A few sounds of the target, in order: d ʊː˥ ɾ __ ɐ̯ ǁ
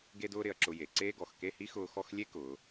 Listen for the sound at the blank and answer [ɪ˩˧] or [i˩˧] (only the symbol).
ɪ˩˧